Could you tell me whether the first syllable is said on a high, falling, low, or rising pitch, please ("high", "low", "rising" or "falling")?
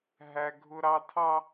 high